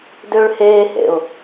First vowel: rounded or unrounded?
rounded